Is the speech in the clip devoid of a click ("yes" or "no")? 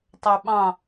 yes